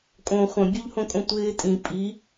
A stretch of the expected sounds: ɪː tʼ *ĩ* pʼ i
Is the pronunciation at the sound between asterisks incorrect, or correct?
correct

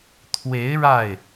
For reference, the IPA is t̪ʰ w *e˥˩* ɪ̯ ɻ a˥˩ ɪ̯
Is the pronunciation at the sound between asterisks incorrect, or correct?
incorrect: e˧˥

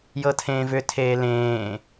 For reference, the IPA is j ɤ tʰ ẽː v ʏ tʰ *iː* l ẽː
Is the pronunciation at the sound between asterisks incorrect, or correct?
incorrect: eː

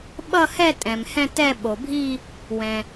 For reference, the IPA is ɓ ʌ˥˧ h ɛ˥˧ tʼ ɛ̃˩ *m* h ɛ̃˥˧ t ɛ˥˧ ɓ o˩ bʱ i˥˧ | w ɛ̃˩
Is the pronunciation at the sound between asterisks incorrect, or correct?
correct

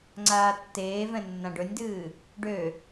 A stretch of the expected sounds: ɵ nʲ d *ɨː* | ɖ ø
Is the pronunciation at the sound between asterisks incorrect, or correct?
correct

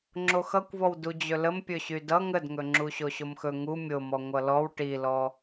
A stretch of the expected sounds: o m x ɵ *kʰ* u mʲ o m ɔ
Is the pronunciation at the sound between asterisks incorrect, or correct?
incorrect: ŋ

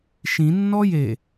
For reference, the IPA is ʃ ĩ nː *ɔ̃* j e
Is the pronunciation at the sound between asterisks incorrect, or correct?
incorrect: ɔ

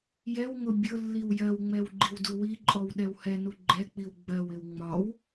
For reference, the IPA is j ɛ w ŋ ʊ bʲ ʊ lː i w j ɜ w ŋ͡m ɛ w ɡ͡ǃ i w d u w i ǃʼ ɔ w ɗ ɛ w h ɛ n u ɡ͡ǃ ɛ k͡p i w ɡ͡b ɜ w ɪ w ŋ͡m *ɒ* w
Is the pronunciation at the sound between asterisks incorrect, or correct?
correct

